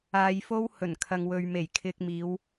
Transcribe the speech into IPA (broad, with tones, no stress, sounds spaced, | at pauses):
aː˧ j f o˥ w h ɵ˨˩ n kʰ ɐ˨ ŋ w ɵ˨ ɥ m e˨˩ j kʰ ɪ˧ k̚ m iː˨˧ w